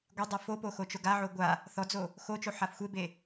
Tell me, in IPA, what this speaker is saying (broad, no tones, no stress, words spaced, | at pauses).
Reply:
ɡʷedˤɛ fopo xot͡ʃoɡaʕo ɡʷa | θɔd͡zo | xot͡ʃo ħafxʷebe